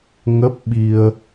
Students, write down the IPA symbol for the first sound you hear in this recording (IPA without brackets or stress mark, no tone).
ŋ